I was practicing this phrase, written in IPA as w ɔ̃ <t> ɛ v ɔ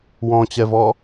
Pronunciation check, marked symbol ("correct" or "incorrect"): incorrect